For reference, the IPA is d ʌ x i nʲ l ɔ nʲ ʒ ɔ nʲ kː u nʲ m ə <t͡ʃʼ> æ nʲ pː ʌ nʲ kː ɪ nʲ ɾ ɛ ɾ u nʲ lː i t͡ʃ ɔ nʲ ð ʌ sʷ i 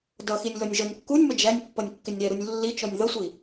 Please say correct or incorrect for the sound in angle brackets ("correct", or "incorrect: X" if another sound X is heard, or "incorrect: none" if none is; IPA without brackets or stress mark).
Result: incorrect: d͡ʒ